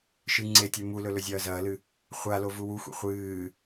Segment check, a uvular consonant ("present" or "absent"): present